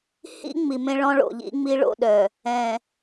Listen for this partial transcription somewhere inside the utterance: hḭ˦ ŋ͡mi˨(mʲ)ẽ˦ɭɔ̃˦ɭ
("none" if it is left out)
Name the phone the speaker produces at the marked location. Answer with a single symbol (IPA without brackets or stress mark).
m